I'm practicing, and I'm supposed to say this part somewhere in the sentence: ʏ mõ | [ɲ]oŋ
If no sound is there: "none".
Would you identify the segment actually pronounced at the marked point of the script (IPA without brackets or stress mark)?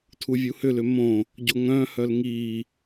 ɟ